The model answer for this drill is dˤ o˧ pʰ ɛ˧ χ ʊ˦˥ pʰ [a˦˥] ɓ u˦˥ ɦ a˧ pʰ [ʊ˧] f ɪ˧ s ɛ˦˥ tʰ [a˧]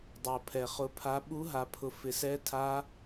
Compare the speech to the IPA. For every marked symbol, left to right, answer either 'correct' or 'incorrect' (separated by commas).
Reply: correct, correct, incorrect